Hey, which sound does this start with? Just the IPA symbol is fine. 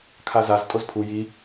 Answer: kʰ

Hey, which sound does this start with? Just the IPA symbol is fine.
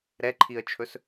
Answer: ɾ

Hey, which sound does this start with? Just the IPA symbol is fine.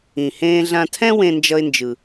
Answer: ĩ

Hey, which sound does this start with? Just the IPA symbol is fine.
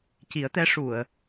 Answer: c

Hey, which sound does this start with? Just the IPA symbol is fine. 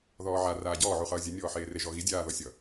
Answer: ð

